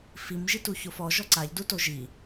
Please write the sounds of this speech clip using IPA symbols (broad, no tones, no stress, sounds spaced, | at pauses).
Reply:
f i m ʒ i t u ç o f ɔ ʒ ɔ ǀ a ʎ d u t o ʒ i